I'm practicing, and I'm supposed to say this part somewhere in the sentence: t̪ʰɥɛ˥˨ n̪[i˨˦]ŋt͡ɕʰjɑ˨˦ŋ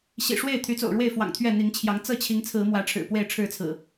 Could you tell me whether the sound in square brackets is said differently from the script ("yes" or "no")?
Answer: no